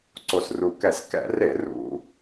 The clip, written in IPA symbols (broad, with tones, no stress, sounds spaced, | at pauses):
ǀ o˨˩ s r u˨˩ k ɛ˧˩˧ s k ɛ̰˧˩˧ r e˧˩˧ r ṵ˧˩˧